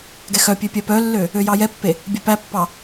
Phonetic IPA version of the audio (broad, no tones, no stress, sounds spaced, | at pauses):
ɡ ɛ x œ pʲ ø pʲ œ p œ lː ø | ø j ɑ j ɛ pː e | bʲ œ p æ pː ɑ